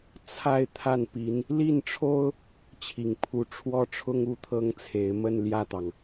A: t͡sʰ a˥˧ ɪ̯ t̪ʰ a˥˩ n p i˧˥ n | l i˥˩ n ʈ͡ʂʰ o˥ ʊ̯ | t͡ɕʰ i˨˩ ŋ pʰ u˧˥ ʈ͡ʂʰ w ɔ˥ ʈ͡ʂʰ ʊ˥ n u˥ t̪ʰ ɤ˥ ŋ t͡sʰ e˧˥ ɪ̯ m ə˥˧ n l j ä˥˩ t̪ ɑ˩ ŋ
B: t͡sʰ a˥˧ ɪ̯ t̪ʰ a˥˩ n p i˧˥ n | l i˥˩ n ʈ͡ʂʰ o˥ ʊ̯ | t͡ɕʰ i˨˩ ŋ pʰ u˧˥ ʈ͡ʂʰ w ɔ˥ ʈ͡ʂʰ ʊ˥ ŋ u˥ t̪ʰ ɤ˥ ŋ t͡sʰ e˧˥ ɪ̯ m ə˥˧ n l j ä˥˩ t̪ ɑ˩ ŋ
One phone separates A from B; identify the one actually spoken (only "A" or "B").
B